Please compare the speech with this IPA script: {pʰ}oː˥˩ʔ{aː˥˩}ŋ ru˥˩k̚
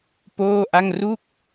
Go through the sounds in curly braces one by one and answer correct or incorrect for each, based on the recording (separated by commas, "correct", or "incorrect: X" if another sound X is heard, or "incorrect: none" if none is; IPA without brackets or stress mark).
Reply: incorrect: p, incorrect: a˥˩